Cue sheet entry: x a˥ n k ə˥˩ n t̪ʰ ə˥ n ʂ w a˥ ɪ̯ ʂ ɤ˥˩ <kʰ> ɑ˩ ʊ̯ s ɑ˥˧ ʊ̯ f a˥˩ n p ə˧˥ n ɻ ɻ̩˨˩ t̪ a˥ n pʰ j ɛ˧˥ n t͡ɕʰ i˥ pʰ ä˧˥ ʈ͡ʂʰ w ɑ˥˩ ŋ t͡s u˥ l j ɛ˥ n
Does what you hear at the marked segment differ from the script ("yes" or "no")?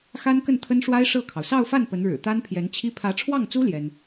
no